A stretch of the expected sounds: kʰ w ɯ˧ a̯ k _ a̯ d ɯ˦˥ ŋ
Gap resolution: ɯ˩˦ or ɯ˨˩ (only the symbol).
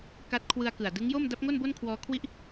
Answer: ɯ˨˩